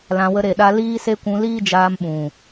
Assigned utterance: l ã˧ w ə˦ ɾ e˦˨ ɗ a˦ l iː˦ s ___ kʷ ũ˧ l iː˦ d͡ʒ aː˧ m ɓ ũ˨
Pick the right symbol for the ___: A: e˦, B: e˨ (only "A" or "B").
A